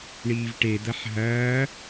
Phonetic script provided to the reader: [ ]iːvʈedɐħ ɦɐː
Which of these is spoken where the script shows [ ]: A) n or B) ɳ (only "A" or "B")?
B